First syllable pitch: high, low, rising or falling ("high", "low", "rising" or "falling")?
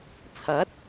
rising